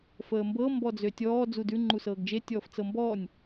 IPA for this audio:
f əː m b ɤ m b ɔ d͡z ø tʲ ɔː d͡z u d ʉ ŋ͡ǃ u s ɤː ɡ d͡ʒ e tʲ ɔː f t͡s ɤ m b ɔː nʲ

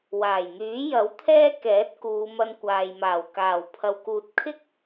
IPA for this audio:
w aː˨˩ j n̪ yː˨˥ j ɐ˨˥ w t̪ʰ ɛː˥ k ɛː˨˥ t̚ k uː˨˧ m ɐ˧ n kʷ aː˨ j m aː˨˩ w k aː˨˩ w pʰ ɐ˨ w k uː˨ t̚ kʰ ɪ˥ k̚

